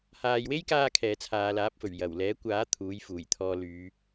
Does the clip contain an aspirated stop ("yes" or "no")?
yes